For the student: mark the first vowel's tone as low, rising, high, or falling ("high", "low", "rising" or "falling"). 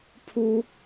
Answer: high